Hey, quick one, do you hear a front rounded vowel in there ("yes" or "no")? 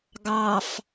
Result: no